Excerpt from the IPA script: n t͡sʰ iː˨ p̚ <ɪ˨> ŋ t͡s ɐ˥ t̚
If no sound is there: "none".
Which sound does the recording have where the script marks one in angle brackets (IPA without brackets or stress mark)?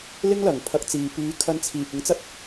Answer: ɪ˨˥